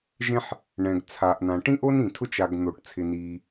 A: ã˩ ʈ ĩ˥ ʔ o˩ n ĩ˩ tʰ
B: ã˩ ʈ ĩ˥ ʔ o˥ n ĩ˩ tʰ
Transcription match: B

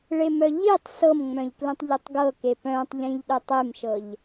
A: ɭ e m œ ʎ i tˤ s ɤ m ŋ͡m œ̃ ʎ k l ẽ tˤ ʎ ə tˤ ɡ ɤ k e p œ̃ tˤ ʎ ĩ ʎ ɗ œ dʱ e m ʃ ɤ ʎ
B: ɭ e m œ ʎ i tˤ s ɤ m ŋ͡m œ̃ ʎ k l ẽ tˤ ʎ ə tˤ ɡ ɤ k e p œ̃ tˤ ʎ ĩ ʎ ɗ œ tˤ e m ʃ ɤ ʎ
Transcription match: B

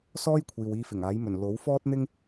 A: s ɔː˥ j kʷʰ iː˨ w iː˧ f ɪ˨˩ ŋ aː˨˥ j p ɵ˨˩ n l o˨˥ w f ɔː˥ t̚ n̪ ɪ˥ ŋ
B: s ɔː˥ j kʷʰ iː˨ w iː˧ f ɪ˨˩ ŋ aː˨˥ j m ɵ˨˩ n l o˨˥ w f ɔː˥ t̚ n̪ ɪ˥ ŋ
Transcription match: B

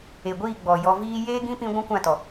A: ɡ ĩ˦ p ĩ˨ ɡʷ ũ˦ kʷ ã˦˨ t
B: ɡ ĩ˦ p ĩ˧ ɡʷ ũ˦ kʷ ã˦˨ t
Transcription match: B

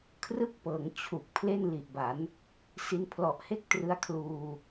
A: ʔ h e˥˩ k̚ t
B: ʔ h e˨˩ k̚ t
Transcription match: A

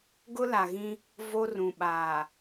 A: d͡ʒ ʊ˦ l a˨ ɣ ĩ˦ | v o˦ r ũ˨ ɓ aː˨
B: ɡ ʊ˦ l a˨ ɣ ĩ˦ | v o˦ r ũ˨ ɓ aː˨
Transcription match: B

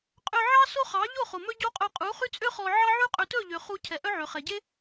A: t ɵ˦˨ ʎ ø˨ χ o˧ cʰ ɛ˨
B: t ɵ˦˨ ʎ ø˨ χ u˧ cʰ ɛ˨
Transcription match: B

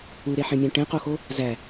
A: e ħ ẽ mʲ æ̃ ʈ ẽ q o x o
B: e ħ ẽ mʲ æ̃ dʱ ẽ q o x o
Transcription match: A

